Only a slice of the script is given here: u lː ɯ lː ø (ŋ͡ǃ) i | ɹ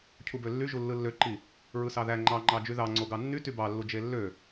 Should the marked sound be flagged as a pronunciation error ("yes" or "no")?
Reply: yes